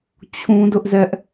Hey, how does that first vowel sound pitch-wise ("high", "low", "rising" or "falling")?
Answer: high